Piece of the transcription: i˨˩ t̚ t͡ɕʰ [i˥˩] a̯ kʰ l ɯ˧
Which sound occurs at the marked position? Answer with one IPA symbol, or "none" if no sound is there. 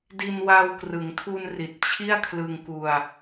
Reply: i˥˩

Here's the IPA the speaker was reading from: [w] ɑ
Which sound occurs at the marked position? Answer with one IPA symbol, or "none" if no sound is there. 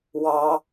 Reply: w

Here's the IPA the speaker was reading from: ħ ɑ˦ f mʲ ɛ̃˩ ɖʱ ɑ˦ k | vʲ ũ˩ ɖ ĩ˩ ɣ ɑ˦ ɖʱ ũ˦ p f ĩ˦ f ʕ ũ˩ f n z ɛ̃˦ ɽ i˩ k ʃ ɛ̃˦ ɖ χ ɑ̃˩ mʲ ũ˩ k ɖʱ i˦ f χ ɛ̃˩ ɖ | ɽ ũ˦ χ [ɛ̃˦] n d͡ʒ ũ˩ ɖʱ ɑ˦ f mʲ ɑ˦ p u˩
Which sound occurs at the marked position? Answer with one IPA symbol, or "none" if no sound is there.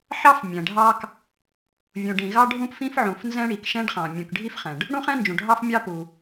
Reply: ɛ̃˦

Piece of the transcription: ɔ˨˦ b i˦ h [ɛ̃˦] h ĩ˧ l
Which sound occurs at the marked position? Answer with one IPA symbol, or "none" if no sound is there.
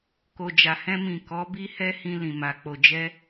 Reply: ɛ˦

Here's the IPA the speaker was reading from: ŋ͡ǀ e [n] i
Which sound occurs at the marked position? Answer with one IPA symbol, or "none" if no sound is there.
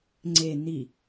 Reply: n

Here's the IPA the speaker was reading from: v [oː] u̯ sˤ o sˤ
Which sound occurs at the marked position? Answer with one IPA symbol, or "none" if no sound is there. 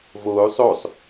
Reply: oː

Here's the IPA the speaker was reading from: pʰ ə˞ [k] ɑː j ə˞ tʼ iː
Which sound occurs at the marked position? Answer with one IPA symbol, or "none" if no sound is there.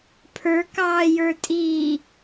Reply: k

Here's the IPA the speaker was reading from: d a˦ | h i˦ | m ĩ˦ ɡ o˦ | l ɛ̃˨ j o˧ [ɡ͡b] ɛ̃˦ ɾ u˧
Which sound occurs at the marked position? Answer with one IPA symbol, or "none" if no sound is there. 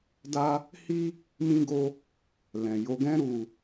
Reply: ɡ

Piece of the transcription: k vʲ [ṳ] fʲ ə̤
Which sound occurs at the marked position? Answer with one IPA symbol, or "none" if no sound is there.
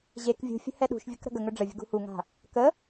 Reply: ṳ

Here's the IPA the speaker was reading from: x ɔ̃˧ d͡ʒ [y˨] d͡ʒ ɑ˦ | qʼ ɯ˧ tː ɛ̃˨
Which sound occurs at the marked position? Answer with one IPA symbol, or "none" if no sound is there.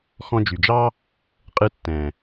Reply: y˨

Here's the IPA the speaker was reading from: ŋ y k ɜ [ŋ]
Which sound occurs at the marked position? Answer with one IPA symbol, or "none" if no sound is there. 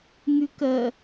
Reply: none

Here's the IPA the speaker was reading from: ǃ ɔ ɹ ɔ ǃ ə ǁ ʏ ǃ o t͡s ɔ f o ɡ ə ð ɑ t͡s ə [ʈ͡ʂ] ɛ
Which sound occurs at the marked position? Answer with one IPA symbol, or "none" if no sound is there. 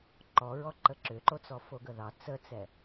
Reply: t͡s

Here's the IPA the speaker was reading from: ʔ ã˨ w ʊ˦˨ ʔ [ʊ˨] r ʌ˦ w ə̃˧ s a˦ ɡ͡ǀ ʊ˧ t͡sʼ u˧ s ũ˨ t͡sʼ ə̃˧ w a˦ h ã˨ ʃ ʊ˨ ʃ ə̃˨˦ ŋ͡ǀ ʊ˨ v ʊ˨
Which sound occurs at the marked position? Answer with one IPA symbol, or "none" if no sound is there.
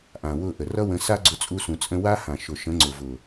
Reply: ə˨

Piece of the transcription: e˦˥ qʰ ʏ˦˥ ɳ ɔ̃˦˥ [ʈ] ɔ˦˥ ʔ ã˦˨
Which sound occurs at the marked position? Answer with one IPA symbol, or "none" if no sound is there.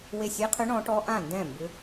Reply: ʈ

